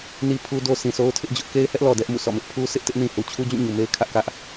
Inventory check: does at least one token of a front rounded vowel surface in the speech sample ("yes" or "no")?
no